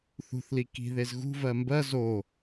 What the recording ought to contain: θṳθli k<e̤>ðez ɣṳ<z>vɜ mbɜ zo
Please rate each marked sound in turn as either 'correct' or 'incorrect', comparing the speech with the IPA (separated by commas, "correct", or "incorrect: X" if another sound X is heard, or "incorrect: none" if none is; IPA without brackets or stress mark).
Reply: incorrect: i̤, incorrect: none